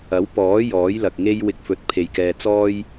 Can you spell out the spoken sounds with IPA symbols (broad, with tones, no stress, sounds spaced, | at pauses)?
ɐ˨˥ w p ɔː˨˥ j ɔː˨˥ j l ɐ˨ k̚ ŋ e˥ j w ɪ˧ k̚ f ɵ˨˥ t̚ pʰ e˨ j k ɛː˧ t͡s ɔː˥ j